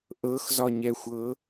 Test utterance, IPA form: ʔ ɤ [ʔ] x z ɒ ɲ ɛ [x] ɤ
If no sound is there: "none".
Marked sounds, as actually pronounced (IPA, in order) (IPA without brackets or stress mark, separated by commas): none, xʷ